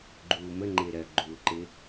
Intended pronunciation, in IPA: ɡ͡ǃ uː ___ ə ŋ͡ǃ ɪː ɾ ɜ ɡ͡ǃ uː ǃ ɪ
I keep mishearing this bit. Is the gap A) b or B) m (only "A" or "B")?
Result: B